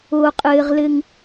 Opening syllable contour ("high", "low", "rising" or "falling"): low